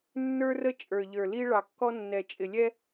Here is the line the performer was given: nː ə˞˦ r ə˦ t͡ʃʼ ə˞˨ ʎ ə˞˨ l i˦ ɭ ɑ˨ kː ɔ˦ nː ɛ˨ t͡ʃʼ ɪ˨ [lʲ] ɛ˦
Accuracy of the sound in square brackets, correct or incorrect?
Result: correct